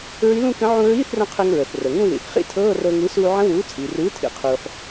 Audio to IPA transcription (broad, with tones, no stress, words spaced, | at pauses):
ɹi˧˥lũ˥˧kə̃˧˥ ʕũ˧ɹiː˧˥˧θrə̃˧ qʰɨ˧ŋɹə˩θ rə˩ŋũ˥˧ðḭ˩θ χḭ˧˥ tʰɤː˧˥˧rɤ˧ŋɨ˩˥ suː˧ʕə̃˧˥wuː˩˥ t͡sʼi˩rɨː˩˥tʰḭ˩ qʰuː˩ħ